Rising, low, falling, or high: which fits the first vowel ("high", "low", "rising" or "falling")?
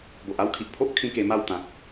low